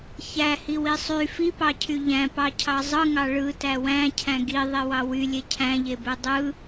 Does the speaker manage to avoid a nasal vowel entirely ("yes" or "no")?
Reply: no